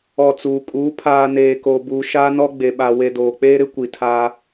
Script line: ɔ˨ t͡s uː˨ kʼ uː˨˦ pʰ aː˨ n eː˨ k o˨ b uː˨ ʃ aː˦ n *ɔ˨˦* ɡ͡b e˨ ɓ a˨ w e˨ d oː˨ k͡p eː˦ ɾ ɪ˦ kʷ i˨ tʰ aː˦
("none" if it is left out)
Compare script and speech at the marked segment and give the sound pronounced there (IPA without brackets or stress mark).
ɔ˦